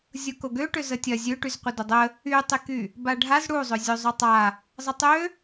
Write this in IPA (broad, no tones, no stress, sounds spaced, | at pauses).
zʲ ʊ k o ɡ ø ʈ ʏ z ə tʲ ɐ zʲ ø ʈ y z qʷ ɪ d ʊ dˤ ə | y tˤ ɪ k y | b a ɖʱ a z ɽ u zˤ ʏ zʲ ø zˤ ʊ tˤ a | zˤ ə tˤ ø